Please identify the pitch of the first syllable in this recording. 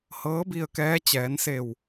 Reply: rising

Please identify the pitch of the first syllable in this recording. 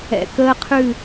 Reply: low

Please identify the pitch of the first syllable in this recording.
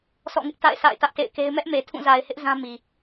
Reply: falling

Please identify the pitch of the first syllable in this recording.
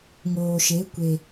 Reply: low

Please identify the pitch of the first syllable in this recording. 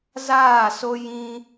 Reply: falling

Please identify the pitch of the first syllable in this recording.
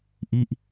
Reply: falling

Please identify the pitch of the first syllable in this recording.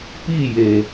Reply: falling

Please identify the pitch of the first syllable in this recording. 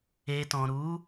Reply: low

